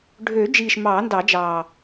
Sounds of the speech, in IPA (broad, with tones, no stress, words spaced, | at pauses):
ɖʱøː˨˩˦d͡ʒiː˨˩ʃ mɑː˨˩˦ndɑ˨˩˦d͡ʒɑː˨˩